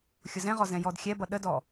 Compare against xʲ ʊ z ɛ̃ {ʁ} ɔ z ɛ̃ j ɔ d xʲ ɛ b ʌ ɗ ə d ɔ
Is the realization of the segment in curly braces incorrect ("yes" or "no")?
no